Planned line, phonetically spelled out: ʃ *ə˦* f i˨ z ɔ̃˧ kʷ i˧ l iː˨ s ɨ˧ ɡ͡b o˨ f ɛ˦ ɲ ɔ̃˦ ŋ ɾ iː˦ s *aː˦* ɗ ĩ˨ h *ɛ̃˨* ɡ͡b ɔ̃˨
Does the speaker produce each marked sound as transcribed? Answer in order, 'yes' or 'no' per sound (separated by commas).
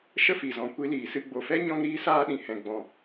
yes, yes, yes